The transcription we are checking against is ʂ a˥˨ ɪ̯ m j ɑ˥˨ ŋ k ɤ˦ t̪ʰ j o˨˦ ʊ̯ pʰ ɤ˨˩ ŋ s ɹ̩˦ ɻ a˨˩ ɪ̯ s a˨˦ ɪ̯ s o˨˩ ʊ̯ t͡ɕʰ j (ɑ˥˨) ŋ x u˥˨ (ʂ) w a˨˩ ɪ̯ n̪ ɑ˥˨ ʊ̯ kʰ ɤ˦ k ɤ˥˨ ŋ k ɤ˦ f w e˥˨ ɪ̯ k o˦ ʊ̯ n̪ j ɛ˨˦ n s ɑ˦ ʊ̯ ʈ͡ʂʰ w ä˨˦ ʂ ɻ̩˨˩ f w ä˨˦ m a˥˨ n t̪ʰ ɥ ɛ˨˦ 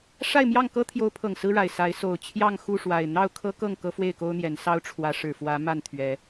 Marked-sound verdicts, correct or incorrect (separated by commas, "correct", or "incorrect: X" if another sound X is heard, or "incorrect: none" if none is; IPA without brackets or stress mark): correct, correct